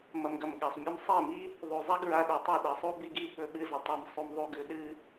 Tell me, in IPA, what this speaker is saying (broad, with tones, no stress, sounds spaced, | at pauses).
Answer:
m ɐ˨ m ɡ ɐ˨ m ɠ a˨ sˤ mʲ ɵ˧ m sˤ e˦˨ m i˦ | ðˤ u˨ zˤ a˦ ɡ ɹ a˧ ɗ o˨ tˤ ɨ˦˨ ɗ ɐ˨˦ sˤ u˦ b i˦ ɡ i˦ ɓ ɵ˧ ɓ ɨ˧ z ɐ˨ tˤ a˧ m sˤ u˧ m ðˤ u˧ ɡ ʉ˨˦ ɗ ɨ˦